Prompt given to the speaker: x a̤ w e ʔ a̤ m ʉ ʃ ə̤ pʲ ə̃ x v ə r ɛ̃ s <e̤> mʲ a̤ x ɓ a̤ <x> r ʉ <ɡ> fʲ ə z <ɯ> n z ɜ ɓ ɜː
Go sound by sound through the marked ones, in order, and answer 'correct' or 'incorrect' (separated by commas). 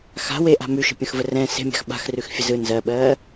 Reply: correct, correct, incorrect, correct